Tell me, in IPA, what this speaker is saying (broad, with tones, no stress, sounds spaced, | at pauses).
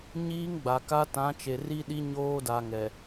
ɲ iː˦ ŋ ɡ͡b a˨ k a˦ t ã˨˦ t͡ʃ e˨ r i˦ ɗ i˦ ɲ oː˦ d a˨ ŋ ɛ˨